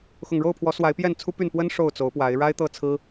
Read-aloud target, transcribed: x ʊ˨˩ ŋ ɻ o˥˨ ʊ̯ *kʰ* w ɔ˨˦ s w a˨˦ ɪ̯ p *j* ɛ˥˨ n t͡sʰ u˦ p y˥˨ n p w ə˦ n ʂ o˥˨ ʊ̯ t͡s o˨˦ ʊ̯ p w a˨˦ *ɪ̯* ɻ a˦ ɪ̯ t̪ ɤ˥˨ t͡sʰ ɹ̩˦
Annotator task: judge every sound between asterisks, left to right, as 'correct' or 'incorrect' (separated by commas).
incorrect, correct, correct